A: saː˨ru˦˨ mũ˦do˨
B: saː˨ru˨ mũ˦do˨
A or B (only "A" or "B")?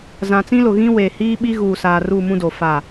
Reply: A